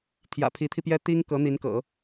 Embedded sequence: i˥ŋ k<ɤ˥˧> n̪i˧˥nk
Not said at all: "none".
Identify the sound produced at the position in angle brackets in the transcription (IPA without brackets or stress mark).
ɤ˧˥